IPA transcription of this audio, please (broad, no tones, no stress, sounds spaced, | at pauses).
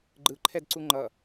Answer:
ɡ͡ǃ ɯ ǃʰ ɛ d ǀ u ŋ͡ǃ ʌ